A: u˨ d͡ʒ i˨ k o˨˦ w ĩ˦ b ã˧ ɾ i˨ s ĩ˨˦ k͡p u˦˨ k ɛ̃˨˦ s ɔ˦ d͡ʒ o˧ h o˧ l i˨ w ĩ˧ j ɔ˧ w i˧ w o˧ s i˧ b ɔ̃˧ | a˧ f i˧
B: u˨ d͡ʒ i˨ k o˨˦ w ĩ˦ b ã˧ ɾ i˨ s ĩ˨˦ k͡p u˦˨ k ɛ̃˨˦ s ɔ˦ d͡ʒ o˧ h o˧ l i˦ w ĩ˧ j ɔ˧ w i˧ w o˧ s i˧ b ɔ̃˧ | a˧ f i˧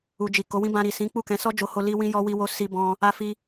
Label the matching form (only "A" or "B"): B